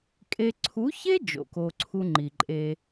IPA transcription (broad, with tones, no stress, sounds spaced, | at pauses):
kʼ e˧ ǀʰ u˨˦ ç e˦ d͡ʒ o̰˨ k o˧ ǀʰ u˦ ŋ͡ǃ i˨ ǃʼ e˧